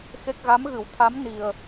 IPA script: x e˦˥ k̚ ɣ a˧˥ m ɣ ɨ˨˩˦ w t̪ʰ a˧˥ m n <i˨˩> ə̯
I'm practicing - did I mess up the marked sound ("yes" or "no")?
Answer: no